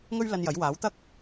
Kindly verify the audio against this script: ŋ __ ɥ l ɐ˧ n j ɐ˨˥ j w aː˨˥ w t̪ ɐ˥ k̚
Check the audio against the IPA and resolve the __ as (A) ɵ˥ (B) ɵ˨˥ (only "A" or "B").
A